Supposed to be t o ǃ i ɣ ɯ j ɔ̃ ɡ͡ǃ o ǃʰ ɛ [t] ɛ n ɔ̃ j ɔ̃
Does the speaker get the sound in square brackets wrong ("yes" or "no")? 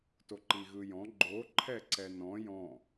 yes